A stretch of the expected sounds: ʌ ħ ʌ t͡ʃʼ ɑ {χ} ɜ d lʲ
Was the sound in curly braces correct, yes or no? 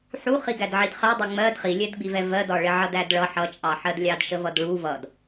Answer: no